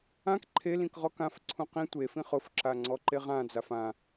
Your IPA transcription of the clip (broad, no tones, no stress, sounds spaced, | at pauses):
ã k ǃʰ e l ĩ k ʁ ɔ k ã f ǀʰ ũ q ĩ tʷ e f ĩ χ ʊ f ǁ a ŋ͡ǀ ɔ ǃ e ʁ ã d͡z a f ã